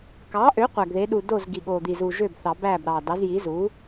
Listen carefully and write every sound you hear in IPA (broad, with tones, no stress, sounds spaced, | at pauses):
k ɑ˩˥ ʔ ø˩˥ qʷ æ˨˩ ɡ ð e˩˥ ɗ u˨˩ d o˥˩ z ɡ i˨˩ ɠ o˨˩ d̪ i˨˩ z u˨˩ ʒ ø˥˩ b θ ɑ˨˩˦ b æ˥˩ b ɾ ɑ˨˩ d ɑ˩˥ z j i˩˥ z u˩˥